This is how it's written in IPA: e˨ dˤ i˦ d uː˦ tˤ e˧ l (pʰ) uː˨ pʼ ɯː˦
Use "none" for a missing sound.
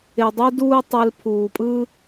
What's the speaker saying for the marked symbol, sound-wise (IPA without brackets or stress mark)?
pʰ